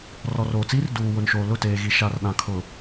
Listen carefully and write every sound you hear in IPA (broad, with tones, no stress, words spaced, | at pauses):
rɔ˨roː˨t͡siː˦r duː˨wʊ˨nʃoː˨ lʊ˦˨teː˨ɣi˨ ʃa˨rɗã˨ kʰʊ˨